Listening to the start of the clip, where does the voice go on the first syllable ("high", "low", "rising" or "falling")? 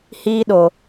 high